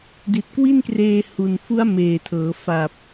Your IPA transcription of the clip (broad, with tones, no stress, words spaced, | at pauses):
di˨˩t̚kwi˥˩nkreː˧ hu˨˩n fu˦˥a̯meː˨˩tʰɤː˩˦ fa˨˩p̚